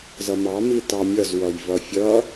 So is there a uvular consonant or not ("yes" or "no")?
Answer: no